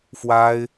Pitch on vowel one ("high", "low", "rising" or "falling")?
high